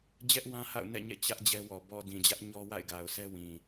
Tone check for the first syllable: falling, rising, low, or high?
high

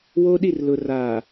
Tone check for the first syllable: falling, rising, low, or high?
high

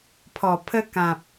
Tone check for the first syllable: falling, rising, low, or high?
low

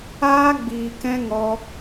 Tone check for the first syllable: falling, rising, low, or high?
high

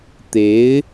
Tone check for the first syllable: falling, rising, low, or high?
rising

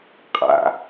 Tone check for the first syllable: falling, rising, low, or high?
low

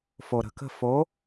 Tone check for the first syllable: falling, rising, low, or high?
low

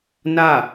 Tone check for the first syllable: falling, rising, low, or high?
falling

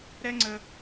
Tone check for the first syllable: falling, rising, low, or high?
high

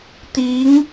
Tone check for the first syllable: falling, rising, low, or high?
rising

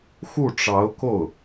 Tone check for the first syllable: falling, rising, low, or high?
falling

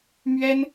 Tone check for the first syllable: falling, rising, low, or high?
high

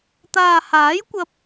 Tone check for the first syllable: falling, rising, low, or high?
low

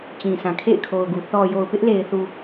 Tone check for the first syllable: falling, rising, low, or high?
low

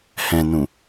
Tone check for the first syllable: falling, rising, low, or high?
low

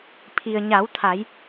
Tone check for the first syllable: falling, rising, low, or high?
low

